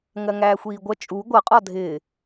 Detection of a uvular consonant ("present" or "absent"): present